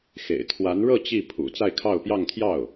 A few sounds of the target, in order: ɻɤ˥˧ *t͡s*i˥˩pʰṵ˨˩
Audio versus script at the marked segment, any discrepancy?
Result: yes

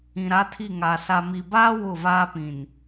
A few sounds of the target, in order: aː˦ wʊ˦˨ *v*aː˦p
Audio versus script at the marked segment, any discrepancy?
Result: no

